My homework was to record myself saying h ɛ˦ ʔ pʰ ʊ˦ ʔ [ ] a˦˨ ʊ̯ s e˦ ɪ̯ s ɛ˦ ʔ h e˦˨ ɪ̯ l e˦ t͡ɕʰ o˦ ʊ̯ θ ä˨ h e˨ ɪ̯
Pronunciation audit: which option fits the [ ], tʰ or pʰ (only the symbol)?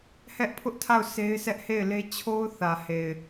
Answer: tʰ